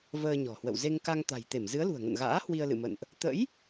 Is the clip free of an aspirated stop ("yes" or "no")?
yes